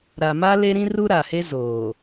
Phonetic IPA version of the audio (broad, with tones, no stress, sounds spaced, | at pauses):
ɾ a˨ m a˦ l e˦ ɾ ĩ˦ r u˦ ɾ a˨ h e˦ z oː˨